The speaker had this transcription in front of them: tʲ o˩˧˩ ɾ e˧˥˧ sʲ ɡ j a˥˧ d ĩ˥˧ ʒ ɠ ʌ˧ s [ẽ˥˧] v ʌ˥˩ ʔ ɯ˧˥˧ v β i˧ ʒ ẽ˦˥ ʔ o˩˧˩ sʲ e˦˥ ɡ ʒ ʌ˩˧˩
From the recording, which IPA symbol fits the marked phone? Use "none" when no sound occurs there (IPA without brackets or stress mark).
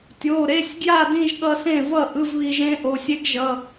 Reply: ẽ˥˩